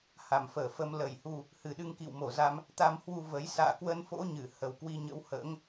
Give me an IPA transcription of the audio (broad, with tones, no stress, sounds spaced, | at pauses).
h a˧˩ m f əː˧˩ f ə˧ m l ə˧˩ j h u˧ | h ɨ˨˩ ɗ ɨ˧ ŋ k ḭ˧˨ w m o˧˩ z a˧ m | t̪ a˧ m h w u˧ v ə˨˦ j s a̰ː˧˨ k w ə˧ n f o̰˧˥ ɲ ɨ˧˩ h ə˨˩ w k w i˧ ɲ ə̰˧˥ w h ə̰ː˧˥ ŋ